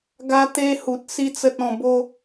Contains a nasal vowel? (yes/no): yes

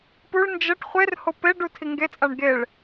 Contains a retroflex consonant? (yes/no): yes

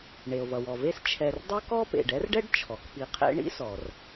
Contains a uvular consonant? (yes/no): yes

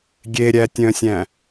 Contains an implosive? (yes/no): no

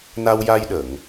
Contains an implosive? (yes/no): yes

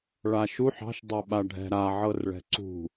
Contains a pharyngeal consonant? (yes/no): yes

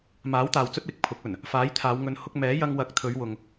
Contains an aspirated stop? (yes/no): yes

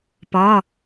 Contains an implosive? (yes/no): no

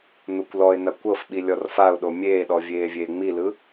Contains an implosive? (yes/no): yes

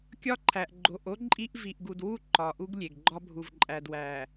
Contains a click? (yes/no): yes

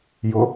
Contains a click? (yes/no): no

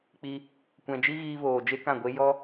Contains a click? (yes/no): no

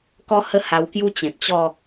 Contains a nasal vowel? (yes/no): yes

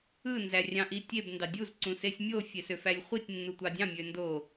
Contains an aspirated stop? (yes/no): no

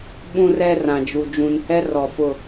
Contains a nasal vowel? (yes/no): yes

